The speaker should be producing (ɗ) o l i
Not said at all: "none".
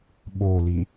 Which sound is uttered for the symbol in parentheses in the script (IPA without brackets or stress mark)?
ɓ